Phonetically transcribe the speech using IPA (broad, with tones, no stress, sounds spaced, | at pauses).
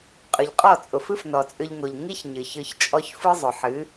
qʼ ʏ˨ ʎ qʼ ɔ˦˨ t͡sʼ ʊ˨ f ɨ˦ f n ɔ˨ t͡sʼ ʏ˧ ʎ ŋ o˨ ʎ ŋ i˦ ç ɲ ɨ˨ ç ɯ˧ ç t͡ʃʼ ɔ˦ ç f ɯ˦ zˤ ʊ˨ ħ ɨ˨˦